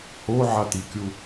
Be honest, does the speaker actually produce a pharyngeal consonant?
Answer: yes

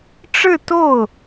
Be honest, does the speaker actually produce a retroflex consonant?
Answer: yes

